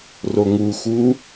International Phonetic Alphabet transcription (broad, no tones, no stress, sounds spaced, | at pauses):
r o ŋ u x u